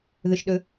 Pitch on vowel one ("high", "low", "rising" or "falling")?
low